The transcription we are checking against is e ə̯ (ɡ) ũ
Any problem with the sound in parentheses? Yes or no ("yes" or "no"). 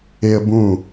yes